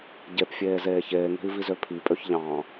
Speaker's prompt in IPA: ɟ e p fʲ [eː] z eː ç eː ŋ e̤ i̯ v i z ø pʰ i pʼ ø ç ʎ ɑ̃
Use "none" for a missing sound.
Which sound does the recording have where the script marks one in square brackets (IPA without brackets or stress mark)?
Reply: eː